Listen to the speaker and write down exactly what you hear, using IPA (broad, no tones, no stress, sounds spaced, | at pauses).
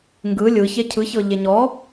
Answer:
ŋ ɡ ɯ lʲ ɯ ç e cʰ ɯ ç ɤ ʎ e ɲ ɔ